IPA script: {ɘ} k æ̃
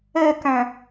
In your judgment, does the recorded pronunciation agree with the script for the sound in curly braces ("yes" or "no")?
no